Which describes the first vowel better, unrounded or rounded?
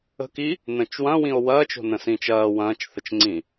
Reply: unrounded